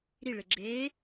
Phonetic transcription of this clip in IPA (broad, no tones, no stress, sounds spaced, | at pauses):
ɾ i ɭ e ɡ͡ǁ eː